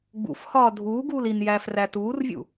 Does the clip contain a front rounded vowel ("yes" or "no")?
no